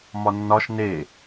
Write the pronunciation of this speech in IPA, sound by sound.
mɒnːɒʃ ne

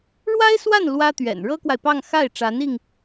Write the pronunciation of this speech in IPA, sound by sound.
ɻwa˥ɪ̯swa˥˩n lwä˥t̪ɥɛ̰˨˩n ɻɤ˥kwa˨ɪ̯pɑ˥˧ŋ xa˥˩ɪ̯ʈ͡ʂa˧˥ni˧ŋ

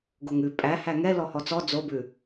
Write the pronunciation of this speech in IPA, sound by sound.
ɡoŋʉ pʼæ hæŋɛ lɔhɔt͡sɔ d͡zobʉ

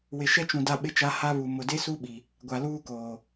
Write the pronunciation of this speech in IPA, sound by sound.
wɪ˨ʃɛ˦t͡ʃũ˨ da˦ɓɪ˦t͡ʃa˦ ha˦βu˨ mʊ˨de˦su˦ɓi˨ | ɡʷa˨ luː˦koː˨

